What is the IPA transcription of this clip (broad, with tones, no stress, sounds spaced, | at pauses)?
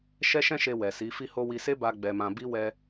ʃ ɛ˦ ʃ ɛ̃˦ ʃ e˧ w ɛ˨ s i˨˦ f i˦ h o˦ w i˧ s e˦ b a˧ ɡ͡b ɛ˧ m ã˧ b i˦ w ɛ˦